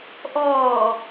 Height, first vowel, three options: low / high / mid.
mid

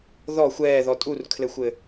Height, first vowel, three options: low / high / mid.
mid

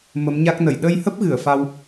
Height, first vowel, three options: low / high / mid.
mid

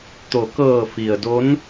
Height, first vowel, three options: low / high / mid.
mid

